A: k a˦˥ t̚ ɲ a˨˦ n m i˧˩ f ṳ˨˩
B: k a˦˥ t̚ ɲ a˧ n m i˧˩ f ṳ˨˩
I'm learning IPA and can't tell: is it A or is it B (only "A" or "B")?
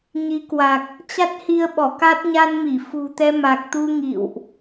B